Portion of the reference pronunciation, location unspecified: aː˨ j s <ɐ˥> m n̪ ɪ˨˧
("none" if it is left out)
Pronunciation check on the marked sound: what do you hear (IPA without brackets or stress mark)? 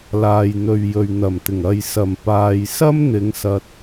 ɐ˥